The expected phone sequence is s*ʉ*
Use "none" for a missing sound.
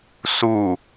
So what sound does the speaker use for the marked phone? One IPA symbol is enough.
u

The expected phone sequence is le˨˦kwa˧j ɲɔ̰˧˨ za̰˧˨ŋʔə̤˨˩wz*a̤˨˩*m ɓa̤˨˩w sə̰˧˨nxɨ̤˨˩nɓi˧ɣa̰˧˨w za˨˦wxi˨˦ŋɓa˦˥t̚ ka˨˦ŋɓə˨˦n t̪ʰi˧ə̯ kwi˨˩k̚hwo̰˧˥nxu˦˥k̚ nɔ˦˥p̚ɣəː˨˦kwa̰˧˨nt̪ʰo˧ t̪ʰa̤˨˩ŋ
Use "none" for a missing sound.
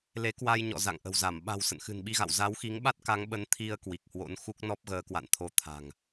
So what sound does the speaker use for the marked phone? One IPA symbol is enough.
a˧˩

